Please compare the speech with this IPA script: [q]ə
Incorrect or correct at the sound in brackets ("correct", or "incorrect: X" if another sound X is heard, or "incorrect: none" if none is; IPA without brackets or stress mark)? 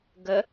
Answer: incorrect: ɡ